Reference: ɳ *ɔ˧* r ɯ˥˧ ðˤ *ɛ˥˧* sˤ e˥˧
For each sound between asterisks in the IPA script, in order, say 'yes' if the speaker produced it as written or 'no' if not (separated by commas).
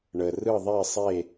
no, no